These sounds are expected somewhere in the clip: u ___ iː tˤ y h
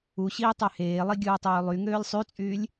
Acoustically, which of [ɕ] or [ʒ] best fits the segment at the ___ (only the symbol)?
ɕ